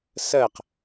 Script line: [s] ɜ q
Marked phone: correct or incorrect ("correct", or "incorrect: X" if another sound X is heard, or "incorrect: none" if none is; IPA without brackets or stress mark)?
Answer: correct